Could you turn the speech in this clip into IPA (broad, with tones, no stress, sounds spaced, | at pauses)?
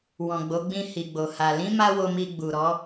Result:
w ɔ̃˨ ɡ͡b o˨˦ ɡ͡b ĩ˧ h i˨ ɡ͡b o˨ h a˨ l ĩ˨˦ m a˧ w o˨ m i˨ ɡ͡b u˨ ɾ ɔ˨˦